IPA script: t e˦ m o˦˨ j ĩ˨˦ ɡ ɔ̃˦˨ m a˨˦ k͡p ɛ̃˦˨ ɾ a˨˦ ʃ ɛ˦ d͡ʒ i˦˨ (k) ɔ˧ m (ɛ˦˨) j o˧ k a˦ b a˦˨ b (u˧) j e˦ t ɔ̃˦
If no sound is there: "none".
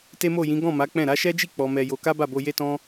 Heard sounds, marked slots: k͡p, ɛ˧, o˧

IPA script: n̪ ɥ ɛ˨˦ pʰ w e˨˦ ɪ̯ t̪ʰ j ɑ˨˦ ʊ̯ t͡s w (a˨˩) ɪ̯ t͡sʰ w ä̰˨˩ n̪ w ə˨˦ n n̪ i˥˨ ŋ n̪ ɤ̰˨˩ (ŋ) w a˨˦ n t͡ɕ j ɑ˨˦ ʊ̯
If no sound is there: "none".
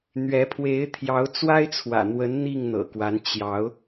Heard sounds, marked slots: a˦, k

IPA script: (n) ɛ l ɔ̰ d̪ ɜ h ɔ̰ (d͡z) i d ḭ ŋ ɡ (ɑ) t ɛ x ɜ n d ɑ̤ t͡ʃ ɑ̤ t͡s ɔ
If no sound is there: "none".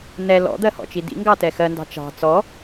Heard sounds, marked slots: n, t͡ʃ, ɑ

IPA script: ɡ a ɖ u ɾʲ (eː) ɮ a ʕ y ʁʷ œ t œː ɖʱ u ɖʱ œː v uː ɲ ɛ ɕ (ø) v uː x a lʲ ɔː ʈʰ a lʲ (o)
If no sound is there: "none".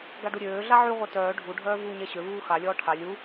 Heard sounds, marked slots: øː, ø, u

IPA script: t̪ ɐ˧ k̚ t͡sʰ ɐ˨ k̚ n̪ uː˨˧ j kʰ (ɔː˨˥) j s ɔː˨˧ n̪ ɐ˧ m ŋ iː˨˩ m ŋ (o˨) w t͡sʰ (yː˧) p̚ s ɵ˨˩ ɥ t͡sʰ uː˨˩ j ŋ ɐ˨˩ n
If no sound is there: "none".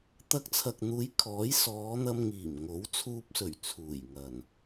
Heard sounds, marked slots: ɔː˨˥, o˨˥, uː˧

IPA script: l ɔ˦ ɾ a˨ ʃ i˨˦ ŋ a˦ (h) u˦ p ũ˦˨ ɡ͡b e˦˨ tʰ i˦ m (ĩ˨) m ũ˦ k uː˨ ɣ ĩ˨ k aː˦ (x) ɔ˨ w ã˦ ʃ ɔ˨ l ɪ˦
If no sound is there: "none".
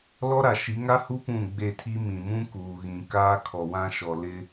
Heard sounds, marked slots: h, ĩ˨, kʰ

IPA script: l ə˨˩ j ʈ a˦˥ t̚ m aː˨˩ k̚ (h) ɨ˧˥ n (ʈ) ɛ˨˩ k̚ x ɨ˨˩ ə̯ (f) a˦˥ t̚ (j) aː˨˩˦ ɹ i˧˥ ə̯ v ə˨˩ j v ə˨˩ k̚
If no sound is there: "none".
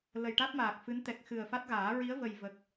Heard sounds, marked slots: f, t̪, f, ɣ

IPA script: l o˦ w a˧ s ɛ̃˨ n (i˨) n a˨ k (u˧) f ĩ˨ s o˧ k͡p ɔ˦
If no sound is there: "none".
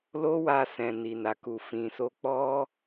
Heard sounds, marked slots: i˨, u˨

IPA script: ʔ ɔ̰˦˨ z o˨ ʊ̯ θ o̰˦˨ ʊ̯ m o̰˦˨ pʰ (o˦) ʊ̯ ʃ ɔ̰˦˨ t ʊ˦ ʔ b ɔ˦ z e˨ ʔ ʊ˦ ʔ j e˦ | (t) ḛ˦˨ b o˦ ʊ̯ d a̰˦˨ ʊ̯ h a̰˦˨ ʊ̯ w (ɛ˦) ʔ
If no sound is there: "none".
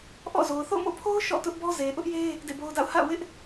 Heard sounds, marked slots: o˦, d, ɪ˦

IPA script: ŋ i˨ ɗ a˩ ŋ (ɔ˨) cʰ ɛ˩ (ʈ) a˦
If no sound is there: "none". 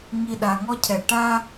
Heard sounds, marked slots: ɔ˦, ʈ

